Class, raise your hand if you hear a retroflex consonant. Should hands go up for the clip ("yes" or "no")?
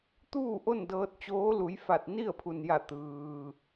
no